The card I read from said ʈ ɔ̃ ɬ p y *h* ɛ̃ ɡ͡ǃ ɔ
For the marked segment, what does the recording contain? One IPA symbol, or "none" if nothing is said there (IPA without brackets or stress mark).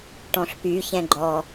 ç